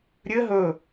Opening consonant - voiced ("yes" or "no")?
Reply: yes